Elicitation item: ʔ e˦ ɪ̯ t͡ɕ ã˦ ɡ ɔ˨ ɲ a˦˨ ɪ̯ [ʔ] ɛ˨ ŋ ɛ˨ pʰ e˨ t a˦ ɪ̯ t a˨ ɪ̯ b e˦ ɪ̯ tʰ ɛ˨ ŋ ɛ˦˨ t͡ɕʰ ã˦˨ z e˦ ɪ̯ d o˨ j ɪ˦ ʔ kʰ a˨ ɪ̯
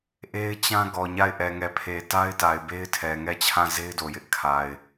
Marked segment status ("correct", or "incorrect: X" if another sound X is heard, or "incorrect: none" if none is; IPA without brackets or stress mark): correct